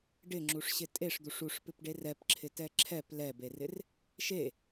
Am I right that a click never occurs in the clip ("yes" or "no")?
no